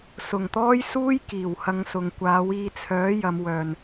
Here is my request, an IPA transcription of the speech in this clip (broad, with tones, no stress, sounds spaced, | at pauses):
s ʊ˨˩ ŋ t̪ ɔː˥ j s uː˥ j k iː˨˩ w h ɐ˧ ŋ s ʊ˨ ŋ kʷ aː˨˥ w iː˧ t͡sʰ œː˨˥ j ɐ˨˧ m w œː˨ n